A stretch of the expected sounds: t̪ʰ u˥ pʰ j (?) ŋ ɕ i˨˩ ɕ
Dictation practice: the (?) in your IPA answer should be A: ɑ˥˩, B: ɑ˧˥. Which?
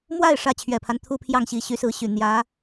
A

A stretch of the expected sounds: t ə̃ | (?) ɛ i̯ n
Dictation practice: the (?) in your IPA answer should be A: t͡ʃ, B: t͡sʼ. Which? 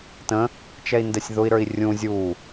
A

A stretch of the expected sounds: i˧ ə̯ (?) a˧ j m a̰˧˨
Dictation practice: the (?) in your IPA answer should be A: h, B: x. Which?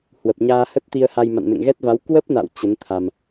A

